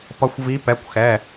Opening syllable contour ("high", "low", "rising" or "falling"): rising